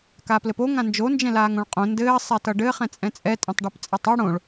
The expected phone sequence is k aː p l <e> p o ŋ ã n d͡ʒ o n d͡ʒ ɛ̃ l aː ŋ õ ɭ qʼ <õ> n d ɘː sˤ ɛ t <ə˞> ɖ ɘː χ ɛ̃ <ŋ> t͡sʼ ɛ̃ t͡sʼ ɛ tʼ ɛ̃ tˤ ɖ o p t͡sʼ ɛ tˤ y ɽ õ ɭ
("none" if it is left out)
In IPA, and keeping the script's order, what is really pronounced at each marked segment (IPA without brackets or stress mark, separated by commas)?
ɘ, õ, ʌ, none